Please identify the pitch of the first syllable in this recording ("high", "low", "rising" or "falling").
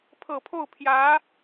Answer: low